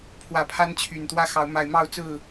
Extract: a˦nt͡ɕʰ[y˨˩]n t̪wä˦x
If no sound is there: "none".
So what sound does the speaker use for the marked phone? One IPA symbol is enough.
y˨˩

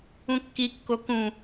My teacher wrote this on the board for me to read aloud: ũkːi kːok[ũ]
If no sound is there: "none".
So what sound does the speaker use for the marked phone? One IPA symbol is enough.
ũ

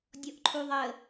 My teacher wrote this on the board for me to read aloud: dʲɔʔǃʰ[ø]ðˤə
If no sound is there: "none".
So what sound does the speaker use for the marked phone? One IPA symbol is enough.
u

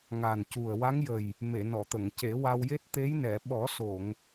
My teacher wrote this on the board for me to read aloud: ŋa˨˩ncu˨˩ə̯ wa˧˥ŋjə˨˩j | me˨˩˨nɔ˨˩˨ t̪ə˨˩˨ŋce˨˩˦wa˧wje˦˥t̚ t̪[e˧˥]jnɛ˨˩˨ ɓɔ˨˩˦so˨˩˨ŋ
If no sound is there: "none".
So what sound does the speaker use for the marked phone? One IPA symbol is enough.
e˧˥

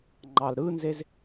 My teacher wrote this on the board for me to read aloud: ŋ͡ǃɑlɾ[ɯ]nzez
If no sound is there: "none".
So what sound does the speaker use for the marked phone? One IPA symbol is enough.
ɯ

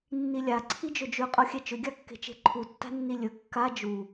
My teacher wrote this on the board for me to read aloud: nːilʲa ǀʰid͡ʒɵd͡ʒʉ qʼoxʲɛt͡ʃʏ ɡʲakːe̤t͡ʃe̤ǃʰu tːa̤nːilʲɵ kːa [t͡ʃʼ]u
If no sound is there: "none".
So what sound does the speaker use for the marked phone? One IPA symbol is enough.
d͡ʒ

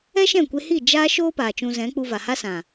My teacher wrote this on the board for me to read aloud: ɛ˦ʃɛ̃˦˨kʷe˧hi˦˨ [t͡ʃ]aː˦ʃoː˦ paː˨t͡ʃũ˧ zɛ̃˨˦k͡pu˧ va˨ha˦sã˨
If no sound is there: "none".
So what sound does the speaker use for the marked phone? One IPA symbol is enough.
d͡ʒ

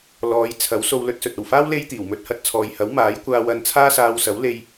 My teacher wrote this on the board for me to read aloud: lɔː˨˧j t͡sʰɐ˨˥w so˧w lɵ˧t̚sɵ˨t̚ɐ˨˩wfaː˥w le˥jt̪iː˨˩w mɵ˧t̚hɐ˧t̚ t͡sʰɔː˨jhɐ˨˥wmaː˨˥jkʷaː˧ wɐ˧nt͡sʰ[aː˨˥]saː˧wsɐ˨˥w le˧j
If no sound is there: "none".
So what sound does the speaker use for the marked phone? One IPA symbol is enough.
aː˥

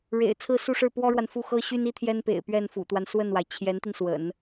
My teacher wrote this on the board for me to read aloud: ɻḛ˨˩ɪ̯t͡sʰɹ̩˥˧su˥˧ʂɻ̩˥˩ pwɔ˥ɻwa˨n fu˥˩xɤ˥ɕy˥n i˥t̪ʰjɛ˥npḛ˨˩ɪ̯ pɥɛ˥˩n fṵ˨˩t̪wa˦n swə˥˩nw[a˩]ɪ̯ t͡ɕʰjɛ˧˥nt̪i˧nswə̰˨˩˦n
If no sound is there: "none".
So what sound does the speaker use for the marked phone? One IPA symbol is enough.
a˩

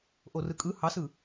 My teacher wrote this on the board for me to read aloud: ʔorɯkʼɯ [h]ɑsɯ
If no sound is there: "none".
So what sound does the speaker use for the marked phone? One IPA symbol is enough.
h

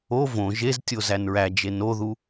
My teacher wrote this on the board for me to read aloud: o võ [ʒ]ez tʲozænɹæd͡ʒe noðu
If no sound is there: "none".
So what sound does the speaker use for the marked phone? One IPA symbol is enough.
ʒ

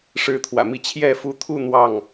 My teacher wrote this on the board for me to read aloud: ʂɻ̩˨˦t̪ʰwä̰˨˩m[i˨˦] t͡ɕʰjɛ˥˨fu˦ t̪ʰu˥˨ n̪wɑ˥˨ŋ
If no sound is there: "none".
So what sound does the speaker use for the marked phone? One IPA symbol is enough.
i˨˦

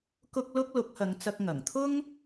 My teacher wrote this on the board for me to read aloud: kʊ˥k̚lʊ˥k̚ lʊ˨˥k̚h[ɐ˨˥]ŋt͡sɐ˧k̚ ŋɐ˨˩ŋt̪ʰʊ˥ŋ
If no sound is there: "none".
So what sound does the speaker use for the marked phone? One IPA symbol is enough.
ɐ˨˧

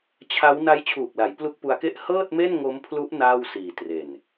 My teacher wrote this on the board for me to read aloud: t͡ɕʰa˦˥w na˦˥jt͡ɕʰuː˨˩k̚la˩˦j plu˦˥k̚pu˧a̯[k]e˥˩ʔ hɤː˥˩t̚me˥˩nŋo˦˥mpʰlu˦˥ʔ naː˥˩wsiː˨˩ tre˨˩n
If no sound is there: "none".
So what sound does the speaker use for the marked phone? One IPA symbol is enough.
k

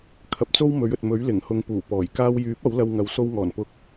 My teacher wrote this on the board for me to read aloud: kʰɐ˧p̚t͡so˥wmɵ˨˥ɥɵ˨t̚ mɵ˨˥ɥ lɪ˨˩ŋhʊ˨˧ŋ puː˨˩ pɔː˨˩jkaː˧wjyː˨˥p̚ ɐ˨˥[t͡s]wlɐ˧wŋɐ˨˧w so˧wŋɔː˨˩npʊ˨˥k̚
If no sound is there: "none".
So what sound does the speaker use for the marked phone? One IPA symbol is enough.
none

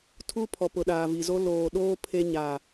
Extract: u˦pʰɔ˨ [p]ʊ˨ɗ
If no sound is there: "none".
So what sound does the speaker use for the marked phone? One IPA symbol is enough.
p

